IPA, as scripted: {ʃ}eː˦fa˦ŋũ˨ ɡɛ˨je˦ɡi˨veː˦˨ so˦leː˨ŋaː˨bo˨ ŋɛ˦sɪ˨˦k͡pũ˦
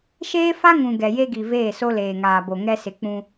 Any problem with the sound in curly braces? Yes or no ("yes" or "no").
no